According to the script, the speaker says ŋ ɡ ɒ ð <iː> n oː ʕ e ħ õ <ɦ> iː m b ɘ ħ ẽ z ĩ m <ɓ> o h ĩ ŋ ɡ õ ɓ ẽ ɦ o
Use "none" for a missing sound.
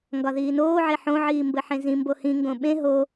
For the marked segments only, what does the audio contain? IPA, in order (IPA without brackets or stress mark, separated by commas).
iː, ʕ, b